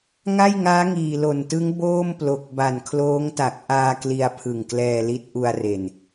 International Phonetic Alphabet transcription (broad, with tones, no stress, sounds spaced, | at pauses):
ŋ a˥˩ j ŋ aː˦˥ ŋ iː˨˩ l o˨˩ n t ɯ˦˥ ŋ b oː˥˩ m p l o˨˩ k̚ b a˨˩ n kʰ l oː˦˥ ŋ t a˨˩ k̚ ʔ aː˧ k l i˧ a̯ pʰ ɯ˨˩ ŋ k l ɛː˧ l i˦˥ t̚ ʔ u˧ a̯ r e˨˩ n